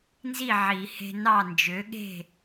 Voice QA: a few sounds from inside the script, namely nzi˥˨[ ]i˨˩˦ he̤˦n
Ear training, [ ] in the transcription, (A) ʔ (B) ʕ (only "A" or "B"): B